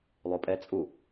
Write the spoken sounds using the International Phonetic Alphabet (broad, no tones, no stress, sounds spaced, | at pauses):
lˠ u pʼ ɛ t͡sʼ u